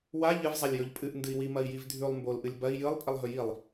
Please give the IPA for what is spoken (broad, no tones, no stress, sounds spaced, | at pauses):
w a ʎ ɨ v zˤ a lʲ j ɵ ʎ pʼ ɨ ʔ n d ɨ i̯ w i m ɐ i̯ j i v dʱ ʉ lˠ m b o l ʔ ɨ lʲ b ɐ i̯ j ɨ lˠ pʼ i lˠ ɦ ɵ j i lˠ